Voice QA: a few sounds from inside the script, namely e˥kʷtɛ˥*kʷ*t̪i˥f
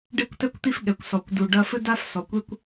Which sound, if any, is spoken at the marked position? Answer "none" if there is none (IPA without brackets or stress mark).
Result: kʷ